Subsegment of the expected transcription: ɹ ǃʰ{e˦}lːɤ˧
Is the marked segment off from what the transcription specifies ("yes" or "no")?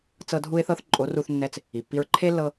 no